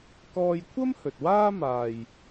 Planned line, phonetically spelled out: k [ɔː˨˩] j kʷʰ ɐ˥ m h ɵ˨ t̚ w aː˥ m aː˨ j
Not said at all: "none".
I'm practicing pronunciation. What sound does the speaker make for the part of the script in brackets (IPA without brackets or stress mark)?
ɔː˧